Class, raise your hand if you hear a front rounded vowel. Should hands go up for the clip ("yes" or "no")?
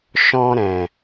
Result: no